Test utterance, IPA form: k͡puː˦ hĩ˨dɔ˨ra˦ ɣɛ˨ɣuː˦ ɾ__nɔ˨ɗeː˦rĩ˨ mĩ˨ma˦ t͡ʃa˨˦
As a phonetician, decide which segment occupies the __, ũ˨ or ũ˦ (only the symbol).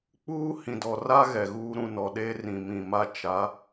ũ˨